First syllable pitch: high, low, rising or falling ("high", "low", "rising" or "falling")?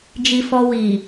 low